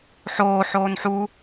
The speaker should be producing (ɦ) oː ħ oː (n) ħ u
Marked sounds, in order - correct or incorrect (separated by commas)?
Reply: incorrect, correct